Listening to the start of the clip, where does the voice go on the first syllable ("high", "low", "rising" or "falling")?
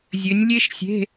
rising